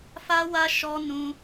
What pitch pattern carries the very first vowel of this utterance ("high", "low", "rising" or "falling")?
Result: high